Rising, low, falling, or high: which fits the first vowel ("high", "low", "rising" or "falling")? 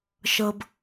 low